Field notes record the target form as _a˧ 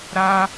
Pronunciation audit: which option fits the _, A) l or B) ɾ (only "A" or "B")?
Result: B